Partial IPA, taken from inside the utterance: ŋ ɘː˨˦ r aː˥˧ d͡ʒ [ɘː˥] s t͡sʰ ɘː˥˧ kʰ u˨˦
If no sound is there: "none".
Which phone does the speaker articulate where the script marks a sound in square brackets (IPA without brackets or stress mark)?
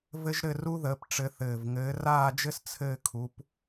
ɘ˥